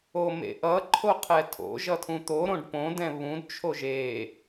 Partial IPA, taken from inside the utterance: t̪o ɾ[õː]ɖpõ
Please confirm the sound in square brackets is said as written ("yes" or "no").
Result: no